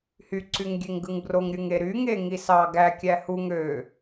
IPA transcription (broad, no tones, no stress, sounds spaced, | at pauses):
h y ǀ y ŋ ɡʲ e ŋ ɡ ɯ ŋ b r o ŋ ɾʲ ɯ ŋ e ɾ y ŋ e ŋ i s ɑ ɡ æ kʲ æ h u ŋ ø